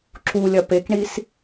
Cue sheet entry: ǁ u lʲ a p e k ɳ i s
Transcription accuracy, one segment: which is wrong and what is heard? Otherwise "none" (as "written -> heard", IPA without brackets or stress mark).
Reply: a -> ɐ